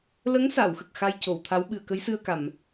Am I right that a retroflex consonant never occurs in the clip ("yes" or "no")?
yes